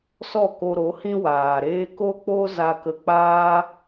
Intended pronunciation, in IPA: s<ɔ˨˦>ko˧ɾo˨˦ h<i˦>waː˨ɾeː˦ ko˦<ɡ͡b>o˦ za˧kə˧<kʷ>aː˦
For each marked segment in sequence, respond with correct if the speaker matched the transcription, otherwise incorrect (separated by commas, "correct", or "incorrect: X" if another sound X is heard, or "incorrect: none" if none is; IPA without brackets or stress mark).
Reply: incorrect: ɔ˦˨, incorrect: ĩ˦, incorrect: k͡p, incorrect: k͡p